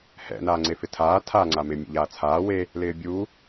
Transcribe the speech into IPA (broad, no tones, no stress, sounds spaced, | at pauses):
h ɛ̰ n aː ŋ͡ǀ e f ɪ tʰ aː tʰ a ŋ͡ǀ a m ɪ mʲ ɛ̰ ʎ aː t͡sʰ aː w e | l ɪː bʲ uː